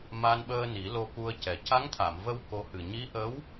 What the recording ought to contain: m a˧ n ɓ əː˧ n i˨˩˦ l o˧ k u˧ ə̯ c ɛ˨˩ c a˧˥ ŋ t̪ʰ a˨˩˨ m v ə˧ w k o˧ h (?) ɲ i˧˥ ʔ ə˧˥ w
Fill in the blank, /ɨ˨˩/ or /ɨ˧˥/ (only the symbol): ɨ˨˩